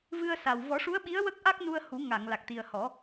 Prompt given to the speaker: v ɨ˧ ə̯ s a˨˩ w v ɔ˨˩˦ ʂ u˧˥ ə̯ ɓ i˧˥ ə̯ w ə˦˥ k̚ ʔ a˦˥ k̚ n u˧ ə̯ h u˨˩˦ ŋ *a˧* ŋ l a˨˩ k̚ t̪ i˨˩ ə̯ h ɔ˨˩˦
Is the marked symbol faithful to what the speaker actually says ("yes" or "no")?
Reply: no